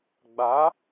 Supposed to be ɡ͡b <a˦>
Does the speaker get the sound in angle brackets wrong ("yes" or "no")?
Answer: yes